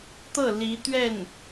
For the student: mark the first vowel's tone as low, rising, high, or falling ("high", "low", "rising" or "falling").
falling